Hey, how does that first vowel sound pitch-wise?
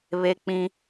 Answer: high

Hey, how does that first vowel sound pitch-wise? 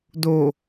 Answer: low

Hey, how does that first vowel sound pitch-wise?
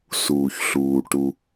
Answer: low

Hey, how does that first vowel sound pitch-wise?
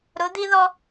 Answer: rising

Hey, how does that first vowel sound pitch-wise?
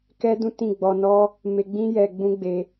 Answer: high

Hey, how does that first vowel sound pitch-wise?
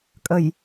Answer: low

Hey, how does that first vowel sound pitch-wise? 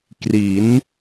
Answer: rising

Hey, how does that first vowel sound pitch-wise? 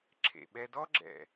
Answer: low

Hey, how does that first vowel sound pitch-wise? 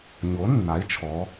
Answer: rising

